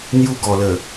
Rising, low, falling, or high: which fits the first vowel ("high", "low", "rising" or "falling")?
high